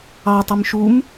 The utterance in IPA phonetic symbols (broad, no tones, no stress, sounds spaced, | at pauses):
ɑ tˤ i m ʃ u m